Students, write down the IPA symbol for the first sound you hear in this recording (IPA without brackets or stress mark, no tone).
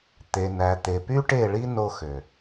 t̪